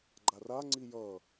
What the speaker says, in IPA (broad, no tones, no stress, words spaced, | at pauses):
ɡ͡ǃaraŋ͡ǀi jʌ